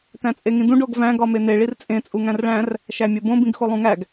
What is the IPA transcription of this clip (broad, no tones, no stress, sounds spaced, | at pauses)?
t æ̃ t͡sʼ e ŋ ĩ d̪ ũ ɖ o ɡ v æ̃ ɡ ɒ m e n̪ e ɭ i r t͡sʼ ẽ t͡sʼ u ŋ æ̃ r ɭ æ̃ r | ʃ æ mʲ o b õ b ĩ ɡ x o lˠ ũ ŋ æ ɡ